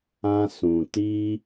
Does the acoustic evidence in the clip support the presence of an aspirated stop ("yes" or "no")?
no